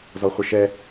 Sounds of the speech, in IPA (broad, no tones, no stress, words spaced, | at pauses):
zɔχʷɪʃɛ